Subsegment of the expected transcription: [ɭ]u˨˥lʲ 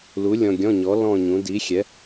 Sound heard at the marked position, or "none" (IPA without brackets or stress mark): l